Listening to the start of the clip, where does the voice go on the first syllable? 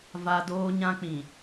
high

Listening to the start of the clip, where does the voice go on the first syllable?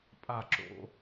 falling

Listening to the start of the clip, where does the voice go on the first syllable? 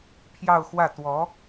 falling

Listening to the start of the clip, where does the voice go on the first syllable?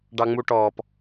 high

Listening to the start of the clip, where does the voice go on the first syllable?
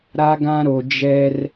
high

